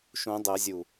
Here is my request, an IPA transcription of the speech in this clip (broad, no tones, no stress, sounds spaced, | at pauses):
ʃ ũ dˤ ɛ zʲ u